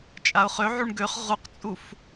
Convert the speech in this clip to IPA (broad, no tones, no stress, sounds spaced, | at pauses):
t͡ʃʼ a ʊ̯ χ ø ʕ u ɳ ɡ ø χ ʁ u q t͡sʼ u f